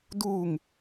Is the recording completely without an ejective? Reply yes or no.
yes